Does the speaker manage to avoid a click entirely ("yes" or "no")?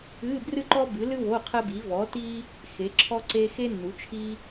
no